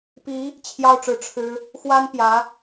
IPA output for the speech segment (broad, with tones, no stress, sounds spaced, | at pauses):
p i˧˥ | t͡ɕʰ j ɑ˥˧ ʊ̯ ʈ͡ʂ ɻ̩˥˩ ʈ͡ʂʰ ɻ̩˥ | x w a˥ n p j ä˧˥